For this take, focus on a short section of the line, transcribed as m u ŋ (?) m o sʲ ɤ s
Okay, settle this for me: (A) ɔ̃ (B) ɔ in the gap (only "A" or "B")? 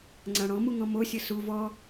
A